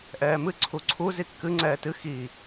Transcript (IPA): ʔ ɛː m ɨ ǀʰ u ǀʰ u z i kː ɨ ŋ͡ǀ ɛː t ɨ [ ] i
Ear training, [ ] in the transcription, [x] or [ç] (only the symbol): x